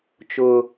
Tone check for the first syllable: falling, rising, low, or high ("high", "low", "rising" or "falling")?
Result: low